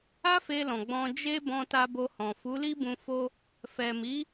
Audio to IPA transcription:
a˦ f e˧ l ɔ̃˨ ɡ͡b ɔ̃˧ d͡ʒ e˦ b ɔ̃˧ t a˧ b o˧ h ɔ̃˨ f u˨˦ l i˦ b ũ˧ f o˦ | f ɛ˨ m i˨˦

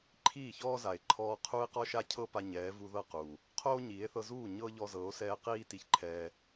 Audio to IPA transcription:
ǃʰ iː˦˨ ç ɔː˦ z a˨ e̯ ǃʰ ɔː˧ qʰ u˧ e̯ q ɔ˧ ʃ a˧ cʰ ɤ˧ p a˧ ɲ ɛː˨˦ v u˧ ð ɤ˦˨ q uː˨ | qʰ oː˦ ɲ iː˨˦ e̯ θ ɤ˧ z uː˦˨ ɲ ɤ˦ ʎ ɔ˧ z ɤ˨˦ o̯ s ɛː˧ q iː˦ t i˧ ç ǃʰ ɛː˧

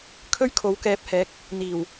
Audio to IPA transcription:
kʰ ɵ˥ ɥ kʰ o˨˥ w k ɛː˨˥ p̚ h ɛː˨˥ k̚ | n̪ iː˨˩ w

